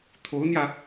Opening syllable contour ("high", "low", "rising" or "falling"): rising